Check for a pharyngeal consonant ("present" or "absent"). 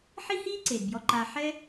present